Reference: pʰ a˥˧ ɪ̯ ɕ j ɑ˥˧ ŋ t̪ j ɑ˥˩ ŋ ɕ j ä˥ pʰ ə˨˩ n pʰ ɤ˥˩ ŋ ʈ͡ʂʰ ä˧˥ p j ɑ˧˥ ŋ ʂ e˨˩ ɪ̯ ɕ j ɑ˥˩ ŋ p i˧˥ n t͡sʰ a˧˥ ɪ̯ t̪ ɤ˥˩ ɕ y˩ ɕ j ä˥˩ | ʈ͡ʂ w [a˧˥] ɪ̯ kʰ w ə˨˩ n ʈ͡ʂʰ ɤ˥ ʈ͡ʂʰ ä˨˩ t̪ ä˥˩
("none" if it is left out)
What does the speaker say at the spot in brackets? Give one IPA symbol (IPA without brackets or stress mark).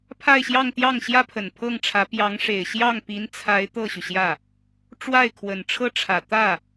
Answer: a˥˩